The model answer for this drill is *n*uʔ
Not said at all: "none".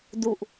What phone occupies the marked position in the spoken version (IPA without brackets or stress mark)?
d